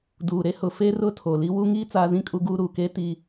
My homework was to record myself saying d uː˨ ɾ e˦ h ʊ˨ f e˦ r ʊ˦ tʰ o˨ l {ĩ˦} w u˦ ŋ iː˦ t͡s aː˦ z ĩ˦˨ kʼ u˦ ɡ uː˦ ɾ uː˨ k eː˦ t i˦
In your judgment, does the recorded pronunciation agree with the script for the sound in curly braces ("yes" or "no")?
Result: no